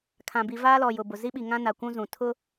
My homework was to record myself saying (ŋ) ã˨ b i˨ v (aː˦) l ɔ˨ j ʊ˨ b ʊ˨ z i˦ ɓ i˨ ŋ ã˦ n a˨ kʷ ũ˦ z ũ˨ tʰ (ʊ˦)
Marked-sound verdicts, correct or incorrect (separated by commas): incorrect, correct, correct